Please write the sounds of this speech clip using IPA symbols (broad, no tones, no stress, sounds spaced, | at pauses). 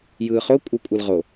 j ɯː χ o kʷʼ ɯ kʷʼ ɯ l ʁ o